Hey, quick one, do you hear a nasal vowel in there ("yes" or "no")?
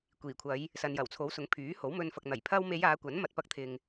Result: no